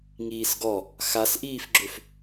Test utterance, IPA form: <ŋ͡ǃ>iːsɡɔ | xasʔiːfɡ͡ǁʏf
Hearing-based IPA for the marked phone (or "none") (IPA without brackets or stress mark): ŋ